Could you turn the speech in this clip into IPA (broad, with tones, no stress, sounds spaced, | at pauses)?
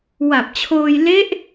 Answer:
w a˨˩ p̚ t͡ɕʰ oː˧ j l e˦˥ ʔ